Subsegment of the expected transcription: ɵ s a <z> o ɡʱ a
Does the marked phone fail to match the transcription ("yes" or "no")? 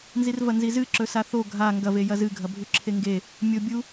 yes